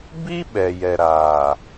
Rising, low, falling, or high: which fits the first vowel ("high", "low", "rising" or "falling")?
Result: high